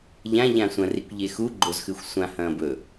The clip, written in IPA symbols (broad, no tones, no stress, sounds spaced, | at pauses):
ʎ ã ʎ ã sʷ ɐ̃ r i kʷ ʎ e x u ɡ͡ǃ o z x ʉ xʷ sʷ ã h ɐ̃ː b ɵ